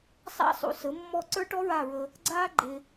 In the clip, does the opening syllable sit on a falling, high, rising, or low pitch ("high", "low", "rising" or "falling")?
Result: high